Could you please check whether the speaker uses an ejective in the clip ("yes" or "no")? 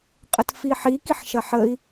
yes